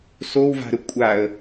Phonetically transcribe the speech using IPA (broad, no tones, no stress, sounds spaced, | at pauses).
s o w v a̤ ɾ ə kʷʼ a ə̯